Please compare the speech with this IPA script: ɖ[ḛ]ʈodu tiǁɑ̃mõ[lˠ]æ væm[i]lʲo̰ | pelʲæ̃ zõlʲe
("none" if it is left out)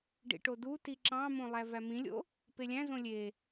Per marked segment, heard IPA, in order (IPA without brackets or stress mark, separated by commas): ḭ, lˠ, ĩ